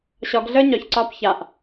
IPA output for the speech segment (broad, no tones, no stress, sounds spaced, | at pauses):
ɕ ɒ ɡ ɮ əː ɲ ɒ ç ǀ ɒː p ç a ʔ